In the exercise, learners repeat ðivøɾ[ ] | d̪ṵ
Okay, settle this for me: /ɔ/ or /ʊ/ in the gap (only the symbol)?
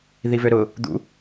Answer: ʊ